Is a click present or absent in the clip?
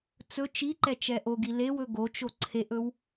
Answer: present